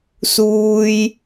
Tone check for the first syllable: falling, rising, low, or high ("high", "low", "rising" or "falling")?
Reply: high